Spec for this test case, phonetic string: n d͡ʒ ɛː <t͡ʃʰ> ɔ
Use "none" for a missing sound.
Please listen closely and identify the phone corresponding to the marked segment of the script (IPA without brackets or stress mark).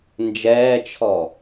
t͡ʃʰ